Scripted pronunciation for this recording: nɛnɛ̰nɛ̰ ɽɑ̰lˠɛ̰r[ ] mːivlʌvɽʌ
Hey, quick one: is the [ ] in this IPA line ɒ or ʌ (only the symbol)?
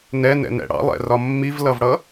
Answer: ɒ